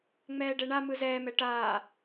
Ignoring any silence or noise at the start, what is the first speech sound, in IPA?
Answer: ŋ͡m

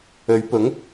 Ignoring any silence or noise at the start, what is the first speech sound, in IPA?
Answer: ɵ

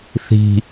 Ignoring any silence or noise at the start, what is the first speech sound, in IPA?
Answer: θ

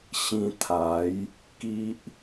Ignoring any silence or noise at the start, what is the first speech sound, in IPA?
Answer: ɕ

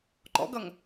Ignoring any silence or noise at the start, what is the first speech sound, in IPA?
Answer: ǃ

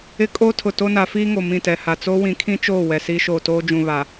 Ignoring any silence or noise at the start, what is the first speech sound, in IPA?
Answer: ɪ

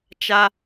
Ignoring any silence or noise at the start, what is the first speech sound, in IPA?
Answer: t͡ʃ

